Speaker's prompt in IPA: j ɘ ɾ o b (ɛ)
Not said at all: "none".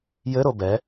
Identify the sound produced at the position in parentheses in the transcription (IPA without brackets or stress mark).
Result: ɛ